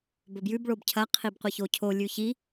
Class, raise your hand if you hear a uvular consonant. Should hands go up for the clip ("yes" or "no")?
yes